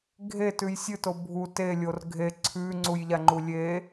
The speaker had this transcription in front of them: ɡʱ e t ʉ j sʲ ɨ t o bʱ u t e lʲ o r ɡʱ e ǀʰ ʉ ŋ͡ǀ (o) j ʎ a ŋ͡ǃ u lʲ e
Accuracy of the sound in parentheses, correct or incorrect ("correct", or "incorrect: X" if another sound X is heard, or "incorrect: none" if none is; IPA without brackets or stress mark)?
incorrect: u